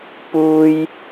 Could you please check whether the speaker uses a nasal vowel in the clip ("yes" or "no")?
no